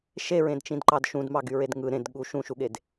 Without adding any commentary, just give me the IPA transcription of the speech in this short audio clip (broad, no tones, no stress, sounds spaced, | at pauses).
ʃ e ɹ ẽ d t͡ʃ ĩ d ǃ ɑ d ʃ ũ d m ɑ ɡ y ɹ e d ŋ ɯ ɾ ẽ d ɠ u ʃ ũ ʃ u ɠ e d